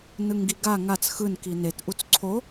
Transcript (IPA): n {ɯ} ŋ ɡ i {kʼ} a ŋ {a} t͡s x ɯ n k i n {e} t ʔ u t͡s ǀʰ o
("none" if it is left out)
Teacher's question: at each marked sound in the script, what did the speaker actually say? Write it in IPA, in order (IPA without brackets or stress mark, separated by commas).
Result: ɯ, ɡ, a, e